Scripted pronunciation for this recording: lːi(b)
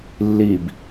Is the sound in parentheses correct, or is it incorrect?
correct